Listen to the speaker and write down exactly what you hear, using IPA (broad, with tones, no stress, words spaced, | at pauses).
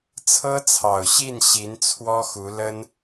t͡sʰɤ˥t͡sʰɑ˨˩ʊ̯ɕi˥˩n ɕi˧˥nt͡sʰwɔ˥xu˧˥ lə˥n